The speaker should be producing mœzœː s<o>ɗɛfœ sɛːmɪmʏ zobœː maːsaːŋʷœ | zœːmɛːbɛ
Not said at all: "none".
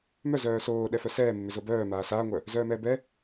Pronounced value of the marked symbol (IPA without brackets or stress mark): oː